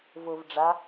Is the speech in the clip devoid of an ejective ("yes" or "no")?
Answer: yes